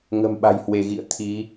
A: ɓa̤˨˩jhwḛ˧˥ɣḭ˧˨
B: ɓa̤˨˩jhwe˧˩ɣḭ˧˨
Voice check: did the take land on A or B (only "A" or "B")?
B